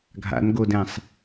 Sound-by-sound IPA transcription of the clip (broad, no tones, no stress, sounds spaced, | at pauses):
ɡʱ a̰ n ɡ o d ɛ̃ sˤ